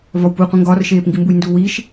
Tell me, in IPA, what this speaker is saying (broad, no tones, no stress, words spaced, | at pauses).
vɒwpuqʷĩ ŋɡɒrʃeːpŋɡimbuj nduwiʃ